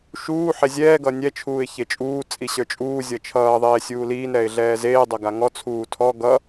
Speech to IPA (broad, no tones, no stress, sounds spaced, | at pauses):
ʃ uː ħ e zʲ ɛː ɡ ʌ nʲ ɛ t͡ʃʰ uː ɪ̯ ç e t͡ʃʼ uː t͡sʼ i ɕ ə˞ t͡ʃʼ uː zʲ ʌ t͡ʃʰ ʌː ðˤ eː sʲ uː l iː n ɾ ɛ ɪ̯ ɮ ɛː z eː dˤ ʌ ɡ a ŋ ɔ t͡sʰ uː tʰ ɔ ɡ ʌ